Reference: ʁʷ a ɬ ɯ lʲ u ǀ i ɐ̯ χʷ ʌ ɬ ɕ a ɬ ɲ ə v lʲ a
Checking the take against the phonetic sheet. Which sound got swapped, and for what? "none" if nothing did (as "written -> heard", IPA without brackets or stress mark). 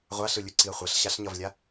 ə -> ʌ